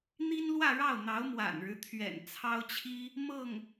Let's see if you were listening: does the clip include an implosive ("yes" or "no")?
no